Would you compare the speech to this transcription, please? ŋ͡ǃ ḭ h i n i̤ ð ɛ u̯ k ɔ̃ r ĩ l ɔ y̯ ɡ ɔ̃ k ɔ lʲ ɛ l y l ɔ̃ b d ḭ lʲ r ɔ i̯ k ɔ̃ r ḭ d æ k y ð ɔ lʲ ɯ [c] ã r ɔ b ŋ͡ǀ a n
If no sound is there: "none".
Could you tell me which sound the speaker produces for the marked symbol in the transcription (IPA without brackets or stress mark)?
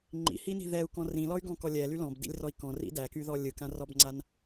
k